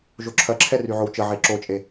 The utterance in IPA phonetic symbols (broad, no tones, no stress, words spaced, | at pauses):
ʒoǁʰɐǁʰɛ ryʕowt͡ʃəʕe ǁot͡ʃʼe